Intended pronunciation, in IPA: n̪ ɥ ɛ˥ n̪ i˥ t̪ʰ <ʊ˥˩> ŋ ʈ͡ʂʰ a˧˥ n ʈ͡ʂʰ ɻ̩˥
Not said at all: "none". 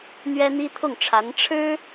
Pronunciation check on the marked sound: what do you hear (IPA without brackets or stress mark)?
ʊ˥˩